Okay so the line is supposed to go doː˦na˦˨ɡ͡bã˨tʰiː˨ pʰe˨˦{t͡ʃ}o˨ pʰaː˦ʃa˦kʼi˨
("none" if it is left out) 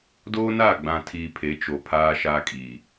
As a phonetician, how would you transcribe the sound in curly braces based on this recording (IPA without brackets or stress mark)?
t͡ʃ